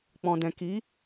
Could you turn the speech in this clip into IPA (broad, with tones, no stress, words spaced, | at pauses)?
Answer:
k͡pɔ̃˨dɛ̃˨ ki˨˦